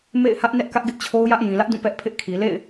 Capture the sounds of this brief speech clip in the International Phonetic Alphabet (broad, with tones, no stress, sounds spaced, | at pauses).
m ḛ˦˨ ɪ̯ h ä˦ ʔ n ɛ˦ ʔ k ä˦ ʔ ɡ ɪ˦ ʔ t͡ɕʰ o˦ ʊ̯ j ä˦ ʔ j ĩ˨ l ä˦ ʔ d ũ˦˨ p ɛ˦ ʔ pʰ ɪ˦ ʔ kʰ i˨ l ḛ˦˨ ɪ̯